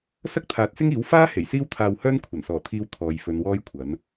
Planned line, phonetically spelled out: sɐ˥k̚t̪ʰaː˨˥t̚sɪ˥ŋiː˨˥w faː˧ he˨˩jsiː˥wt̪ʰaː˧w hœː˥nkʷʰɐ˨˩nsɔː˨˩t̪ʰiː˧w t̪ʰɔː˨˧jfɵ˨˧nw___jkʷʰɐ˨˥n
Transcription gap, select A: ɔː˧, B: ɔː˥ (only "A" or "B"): B